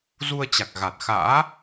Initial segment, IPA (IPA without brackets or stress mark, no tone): z